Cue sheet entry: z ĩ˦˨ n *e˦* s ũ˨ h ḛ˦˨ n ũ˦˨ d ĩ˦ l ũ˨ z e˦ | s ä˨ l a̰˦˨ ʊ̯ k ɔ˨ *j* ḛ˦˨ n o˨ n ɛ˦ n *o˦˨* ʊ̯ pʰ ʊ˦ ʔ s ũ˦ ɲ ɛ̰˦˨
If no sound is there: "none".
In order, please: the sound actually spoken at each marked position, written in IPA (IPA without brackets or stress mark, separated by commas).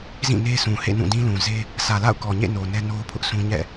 e˦, ɲ, o˦